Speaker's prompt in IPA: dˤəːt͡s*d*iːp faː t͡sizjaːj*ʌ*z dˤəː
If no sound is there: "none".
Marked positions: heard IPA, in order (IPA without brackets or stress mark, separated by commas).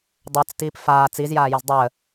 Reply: t, ʌ